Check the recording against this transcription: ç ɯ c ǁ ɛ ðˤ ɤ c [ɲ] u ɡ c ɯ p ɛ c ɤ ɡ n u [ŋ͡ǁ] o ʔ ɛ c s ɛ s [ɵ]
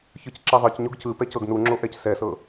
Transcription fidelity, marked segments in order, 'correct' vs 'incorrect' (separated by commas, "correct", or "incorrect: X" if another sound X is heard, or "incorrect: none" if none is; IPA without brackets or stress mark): correct, correct, incorrect: ɤ